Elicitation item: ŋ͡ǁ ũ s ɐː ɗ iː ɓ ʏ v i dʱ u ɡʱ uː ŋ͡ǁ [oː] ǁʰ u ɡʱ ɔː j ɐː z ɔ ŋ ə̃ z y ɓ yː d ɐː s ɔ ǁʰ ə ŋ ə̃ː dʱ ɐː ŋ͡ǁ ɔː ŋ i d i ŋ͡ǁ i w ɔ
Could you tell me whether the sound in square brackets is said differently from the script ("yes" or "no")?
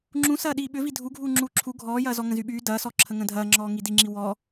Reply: yes